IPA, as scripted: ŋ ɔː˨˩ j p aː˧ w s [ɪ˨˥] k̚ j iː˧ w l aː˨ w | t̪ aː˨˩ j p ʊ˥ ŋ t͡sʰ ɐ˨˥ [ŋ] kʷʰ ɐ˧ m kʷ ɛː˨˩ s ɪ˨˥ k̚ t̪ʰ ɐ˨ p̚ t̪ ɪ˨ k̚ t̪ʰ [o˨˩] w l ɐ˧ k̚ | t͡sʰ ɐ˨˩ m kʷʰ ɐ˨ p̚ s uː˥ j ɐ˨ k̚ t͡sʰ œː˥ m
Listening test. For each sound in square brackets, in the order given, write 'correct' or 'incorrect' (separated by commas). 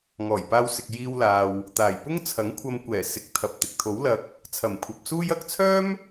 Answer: incorrect, correct, incorrect